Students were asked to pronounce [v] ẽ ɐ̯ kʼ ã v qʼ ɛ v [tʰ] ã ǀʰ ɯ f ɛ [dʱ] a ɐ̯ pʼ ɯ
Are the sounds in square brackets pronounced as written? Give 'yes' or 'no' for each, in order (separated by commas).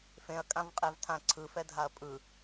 no, yes, yes